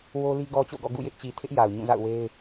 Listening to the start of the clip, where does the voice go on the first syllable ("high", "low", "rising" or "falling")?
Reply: high